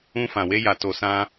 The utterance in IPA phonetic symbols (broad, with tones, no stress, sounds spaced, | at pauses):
ũ˧ f ã˨ w e˧ j a˨ t o˨ s ã˧